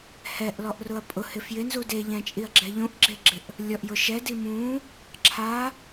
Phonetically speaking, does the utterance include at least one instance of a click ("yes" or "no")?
yes